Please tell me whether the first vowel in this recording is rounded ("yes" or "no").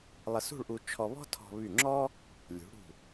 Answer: no